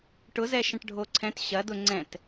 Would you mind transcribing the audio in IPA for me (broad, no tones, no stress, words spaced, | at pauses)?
ʈʊzɛ ʃɐ̃ʈɖʱoǀʰɛ̃t ɕɐdʊ ŋ͡ǀɛ̃t